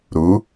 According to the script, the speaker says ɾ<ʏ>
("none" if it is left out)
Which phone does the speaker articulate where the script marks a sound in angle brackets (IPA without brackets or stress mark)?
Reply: u